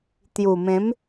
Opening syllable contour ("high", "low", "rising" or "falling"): low